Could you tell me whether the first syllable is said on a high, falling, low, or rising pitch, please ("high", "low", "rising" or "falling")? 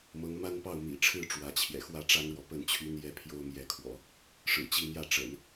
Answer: rising